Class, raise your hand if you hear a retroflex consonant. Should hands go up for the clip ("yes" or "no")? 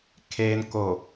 no